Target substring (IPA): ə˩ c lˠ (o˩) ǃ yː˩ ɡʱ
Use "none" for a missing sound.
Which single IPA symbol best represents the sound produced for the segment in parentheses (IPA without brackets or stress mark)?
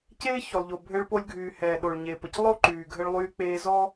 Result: o˥